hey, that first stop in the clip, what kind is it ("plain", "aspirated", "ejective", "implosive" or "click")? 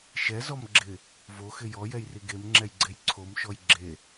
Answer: click